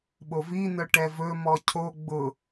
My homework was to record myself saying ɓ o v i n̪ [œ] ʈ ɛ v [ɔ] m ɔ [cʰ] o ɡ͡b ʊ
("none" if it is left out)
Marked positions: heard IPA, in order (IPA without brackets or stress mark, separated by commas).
œ, ɵ, cʰ